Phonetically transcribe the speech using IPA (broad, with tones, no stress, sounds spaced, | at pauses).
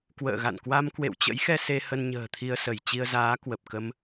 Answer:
k w ə̰ː˧˨ ɣ a̰˧˨ n k w a˧ m k w ḛ˧˨ w t͡ɕ ə̰˧˥ j x ɛ˧ s e˧ h ə˧ n ɲ ə̤ː˨˩ t̪ʰ i˧ ə̯ s ə˧˩ j t͡ɕ i˧ ə̯ z aː˨˦ k w ə˨˩ p̚ k ə˧ m